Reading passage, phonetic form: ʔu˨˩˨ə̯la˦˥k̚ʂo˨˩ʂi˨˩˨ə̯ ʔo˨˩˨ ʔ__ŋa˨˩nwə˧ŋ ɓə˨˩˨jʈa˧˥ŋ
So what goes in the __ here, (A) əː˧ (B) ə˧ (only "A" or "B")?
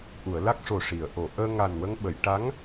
A